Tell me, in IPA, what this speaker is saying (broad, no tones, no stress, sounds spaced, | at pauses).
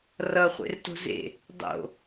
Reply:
r ʌ χʷ ḛ r t o̤ z ḛ | dˤ o̰